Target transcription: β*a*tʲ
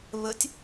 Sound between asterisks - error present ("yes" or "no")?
yes